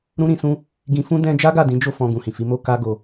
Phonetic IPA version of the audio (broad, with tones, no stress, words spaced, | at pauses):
ɾũ˦ɾĩ˧ sũ˦ | ɡĩ˧fũ˦ dɛ̃˦ d͡ʒa˦ɡa˦˨dĩ˨˦d͡ʒo˦˨ fɔ̃˧ɡũ˨hĩ˨fi˨˦ mo˦ka˦ɡo˧